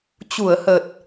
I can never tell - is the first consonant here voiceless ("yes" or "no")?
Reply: yes